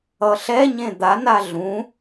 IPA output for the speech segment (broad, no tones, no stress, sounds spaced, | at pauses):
ʌ ɬ ɛ ɲ ẽ d̪ a n a ɮ ũ